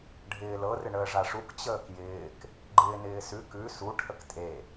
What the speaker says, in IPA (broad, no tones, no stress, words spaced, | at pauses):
ɖʱɪːlɤ rɪɳəːʐaʂuk t͡ɕəːkjɪːk | ɡ͡ǃɪːnɪːsʉ kʉ su ʈʰəktʼe